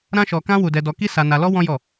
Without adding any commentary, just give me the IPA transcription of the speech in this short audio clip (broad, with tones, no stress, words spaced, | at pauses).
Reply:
ɾã˦ʃɔ˧kã˦ wu˦dɛ˦dɔ˦ ki˦sa˧na˧lɔ˦ wɔ̃˦jɔ˦˨